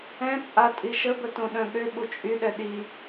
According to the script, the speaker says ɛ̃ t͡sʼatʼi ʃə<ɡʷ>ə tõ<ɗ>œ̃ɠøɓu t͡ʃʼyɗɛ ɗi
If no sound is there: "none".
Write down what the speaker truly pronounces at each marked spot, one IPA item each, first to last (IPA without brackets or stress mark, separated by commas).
b, ɗ